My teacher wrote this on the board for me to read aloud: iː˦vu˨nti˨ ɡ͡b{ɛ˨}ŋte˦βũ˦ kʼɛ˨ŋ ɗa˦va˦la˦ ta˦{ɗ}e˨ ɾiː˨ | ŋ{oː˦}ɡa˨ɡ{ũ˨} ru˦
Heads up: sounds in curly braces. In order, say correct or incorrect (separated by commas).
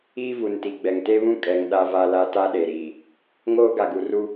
correct, correct, correct, incorrect